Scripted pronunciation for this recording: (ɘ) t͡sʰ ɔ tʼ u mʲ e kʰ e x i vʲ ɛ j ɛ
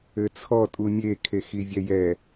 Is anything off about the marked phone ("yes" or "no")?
no